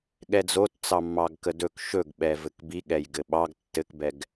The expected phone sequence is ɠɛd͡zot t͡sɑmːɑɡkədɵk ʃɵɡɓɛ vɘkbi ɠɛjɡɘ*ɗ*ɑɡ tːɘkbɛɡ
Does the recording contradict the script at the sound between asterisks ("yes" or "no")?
yes